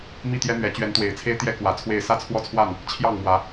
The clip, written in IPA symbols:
mi˥˨t̪jɛ˦n̪ɥɛ˨˦ t͡ɕɥɛ˨˦nt̪we˨˩ɪ̯t͡sʰe˦ɪ̯ t̪jɛ˦ kwä˨˦t͡sʰwe˥˨ɪ̯ sä˥˨t͡sʰwɔ˦t͡sʰwa˥˨n | t͡ɕʰjɑ˥˨ŋmwä˨˦

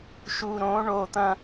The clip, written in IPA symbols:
ʃu˨ɾõ˨˦ ɳo˨t̪ɐ̃˦

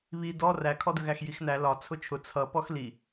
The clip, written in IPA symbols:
βi dɔ rækʰɔdəɣæx jixnæ lɒ t͡sʰʊt͡ʃʰʊ t͡sʰʌ pɔxli

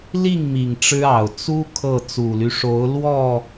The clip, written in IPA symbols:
li˥˨ŋmi˨˩ŋ ʈ͡ʂɻ̩˦ɑ˨˩ʊ̯ t͡su˦ kʰɤ˥˨ t͡su˨˩ly˦ʂo˨˦ʊ̯ lwɔ˥˨

